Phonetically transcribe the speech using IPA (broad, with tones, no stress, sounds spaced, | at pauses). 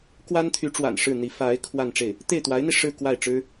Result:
k w a˥ n t̪ʰ y˧˥ ʈ͡ʂ w a̰˨˩ n ʂ ɻ̩˥˩ n̪ i˧˥ f a˧˥ ɪ̯ kʰ w a˥˧ n ʈ͡ʂ e˥˩ ɪ̯ | t̪ e˥˩ ɪ̯ t̪ w a˧˥ ɪ̯ n̪ i˧ ʂ ɻ̩˥˧ k w a˥˩ ɪ̯ ʈ͡ʂ ɻ̩˥